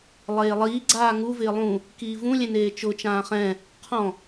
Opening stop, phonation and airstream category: click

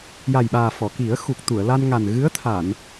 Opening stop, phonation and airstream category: implosive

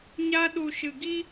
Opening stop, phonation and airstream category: implosive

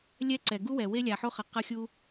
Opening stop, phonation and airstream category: click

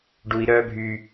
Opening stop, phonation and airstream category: plain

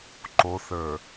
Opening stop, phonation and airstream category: click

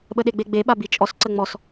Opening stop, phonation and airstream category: implosive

